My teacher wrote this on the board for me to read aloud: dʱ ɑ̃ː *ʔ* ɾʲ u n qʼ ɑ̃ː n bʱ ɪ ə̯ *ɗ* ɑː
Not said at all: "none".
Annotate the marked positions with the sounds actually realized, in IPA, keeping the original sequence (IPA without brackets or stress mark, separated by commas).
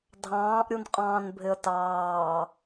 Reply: ʔ, t